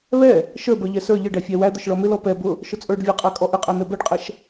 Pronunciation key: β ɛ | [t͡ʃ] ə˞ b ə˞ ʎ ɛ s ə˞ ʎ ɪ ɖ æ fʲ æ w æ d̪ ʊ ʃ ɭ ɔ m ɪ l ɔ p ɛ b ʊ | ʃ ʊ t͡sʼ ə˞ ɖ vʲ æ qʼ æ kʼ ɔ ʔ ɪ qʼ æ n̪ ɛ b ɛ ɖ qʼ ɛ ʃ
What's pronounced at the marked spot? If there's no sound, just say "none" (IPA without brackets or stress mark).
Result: ʃ